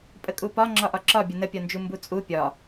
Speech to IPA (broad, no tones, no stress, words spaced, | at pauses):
pʼəkʼupɒ ŋ͡ǁɒʔɒǁɒ bʲənəpʲɒnd͡ʒu mbut͡sʼu pʲɒ